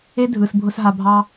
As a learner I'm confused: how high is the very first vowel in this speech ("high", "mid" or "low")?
mid